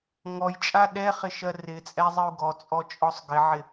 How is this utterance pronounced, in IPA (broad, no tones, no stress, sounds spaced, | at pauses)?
ŋ ɔ j t͡ʃʼ a ɗ ɛ χ ɪ ʃ ɜ r ɪ t͡sʼ ɛ zˤ ɨ u̯ ɡ ɔ t͡sʼ ɔ t͡ʃʼ ɔ sˤ ɡ ɪ ʕ ɪ